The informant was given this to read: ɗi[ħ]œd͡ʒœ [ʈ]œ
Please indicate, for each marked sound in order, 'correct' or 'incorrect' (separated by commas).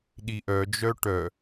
incorrect, correct